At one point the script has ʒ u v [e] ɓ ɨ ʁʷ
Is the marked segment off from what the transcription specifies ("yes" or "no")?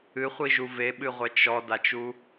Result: no